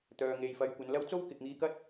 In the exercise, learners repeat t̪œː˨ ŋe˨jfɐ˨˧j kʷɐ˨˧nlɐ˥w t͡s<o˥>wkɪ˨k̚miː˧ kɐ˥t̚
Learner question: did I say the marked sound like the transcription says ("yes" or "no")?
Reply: yes